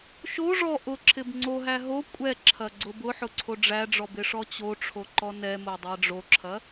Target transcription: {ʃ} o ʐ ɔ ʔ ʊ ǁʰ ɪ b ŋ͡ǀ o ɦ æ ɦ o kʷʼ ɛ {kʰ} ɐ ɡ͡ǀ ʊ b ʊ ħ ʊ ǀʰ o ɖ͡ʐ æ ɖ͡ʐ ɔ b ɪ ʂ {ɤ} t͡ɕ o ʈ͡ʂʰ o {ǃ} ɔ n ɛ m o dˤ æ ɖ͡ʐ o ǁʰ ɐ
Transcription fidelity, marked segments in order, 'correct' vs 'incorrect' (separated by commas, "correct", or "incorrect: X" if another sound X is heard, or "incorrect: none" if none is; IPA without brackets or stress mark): correct, incorrect: ǁʰ, incorrect: ɔ, correct